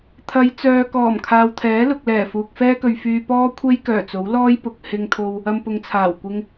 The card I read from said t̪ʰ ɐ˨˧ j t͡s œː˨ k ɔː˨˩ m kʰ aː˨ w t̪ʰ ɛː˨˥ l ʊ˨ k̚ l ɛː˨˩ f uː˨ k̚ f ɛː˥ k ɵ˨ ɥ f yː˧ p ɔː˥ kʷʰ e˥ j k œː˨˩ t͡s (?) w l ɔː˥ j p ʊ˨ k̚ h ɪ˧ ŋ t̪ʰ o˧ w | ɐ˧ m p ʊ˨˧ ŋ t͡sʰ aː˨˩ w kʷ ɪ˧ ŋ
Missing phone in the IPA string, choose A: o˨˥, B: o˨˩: A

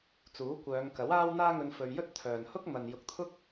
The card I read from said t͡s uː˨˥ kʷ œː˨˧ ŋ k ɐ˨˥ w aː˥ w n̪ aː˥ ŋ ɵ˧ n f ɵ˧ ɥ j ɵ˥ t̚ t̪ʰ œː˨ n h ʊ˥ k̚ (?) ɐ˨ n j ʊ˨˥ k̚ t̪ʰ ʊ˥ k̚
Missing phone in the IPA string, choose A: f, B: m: B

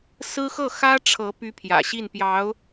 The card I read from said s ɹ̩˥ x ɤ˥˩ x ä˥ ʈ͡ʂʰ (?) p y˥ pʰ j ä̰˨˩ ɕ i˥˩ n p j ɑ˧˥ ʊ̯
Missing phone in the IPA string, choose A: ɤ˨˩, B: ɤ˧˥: B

